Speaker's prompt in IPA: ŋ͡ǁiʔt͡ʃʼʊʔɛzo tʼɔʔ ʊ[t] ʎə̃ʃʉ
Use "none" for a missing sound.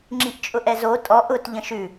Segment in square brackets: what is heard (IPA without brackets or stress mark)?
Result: t